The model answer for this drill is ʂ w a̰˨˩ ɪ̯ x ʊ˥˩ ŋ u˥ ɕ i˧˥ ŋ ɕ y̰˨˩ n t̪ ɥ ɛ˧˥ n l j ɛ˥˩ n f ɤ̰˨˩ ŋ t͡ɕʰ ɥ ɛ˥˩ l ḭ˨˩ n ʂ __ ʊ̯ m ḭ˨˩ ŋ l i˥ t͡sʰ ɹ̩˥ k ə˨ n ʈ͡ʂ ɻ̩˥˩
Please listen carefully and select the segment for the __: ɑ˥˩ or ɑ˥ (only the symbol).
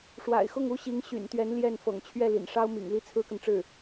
ɑ˥